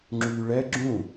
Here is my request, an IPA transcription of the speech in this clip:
ŋ͡ǁ yː ɭ ɛ ɡ͡ǁ ũ

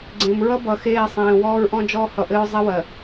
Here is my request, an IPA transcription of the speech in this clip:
ɡ͡ǀ ẽ˨ m ɹ ʌ˦ b ʌ˨ x eː˦˨ sˤ ẽː˨ w ɔː˦ ɹ ʔ ɔ̃˦ d͡ʒ ɔː˦ h ʌ˨ ʔ ɘ˦ ɹ zˤ ɛ˦ w ɜ˨

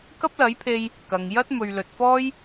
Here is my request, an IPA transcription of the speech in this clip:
k ɐ˥ p̚ l ɐ˨˥ j pʰ e˧ j | k ɐ˨ ŋ j ɐ˥ t̚ m ɵ˨ ɥ l ɵ˨ t̚ f ɔː˥ j

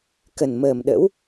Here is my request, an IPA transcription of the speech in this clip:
k ə˨˩ n m əː˨˩ m ɗ ə̰˧˥ w

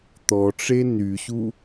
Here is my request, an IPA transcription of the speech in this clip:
t̪ ɔ ʈ͡ʂ e n y ɕ u

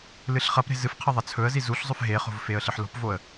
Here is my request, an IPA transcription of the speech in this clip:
l ɨ ɬ χ ɐ p ɾ e̤ z ɨ f qʰ ɐ ðˤ ɐ t͡sʰ ɵ ə̯ z i z u ɬ zˤ ɵ f ɦ e χ o̤ v f e ə̯ ɬ ɨ ħ l o̤ p v o ə̯

